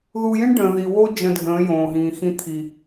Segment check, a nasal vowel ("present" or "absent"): present